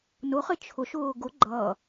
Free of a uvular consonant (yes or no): no